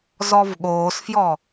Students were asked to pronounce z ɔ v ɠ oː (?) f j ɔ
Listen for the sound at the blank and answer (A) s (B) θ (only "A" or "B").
A